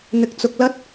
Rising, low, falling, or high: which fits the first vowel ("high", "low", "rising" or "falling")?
rising